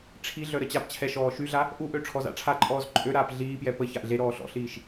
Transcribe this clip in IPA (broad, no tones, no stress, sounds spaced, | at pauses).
ʈ͡ʂʰ i ɮ œ ɾ ə t͡ɕ a p t͡ɕʰ ɛ ʃ ɔː ʃ y ɮ a | ʔ u ʔ ø ʈ͡ʂʰ ɔ z a̰ ʈ͡ʂʰ a ǃʼ ɔː z ǃʼ ø ɾ aː p ɮ iː p j ɛ p ə ç a ʔ ɮ e ɾ ɔː ɬ ɔ̰ ɬ iː ʃ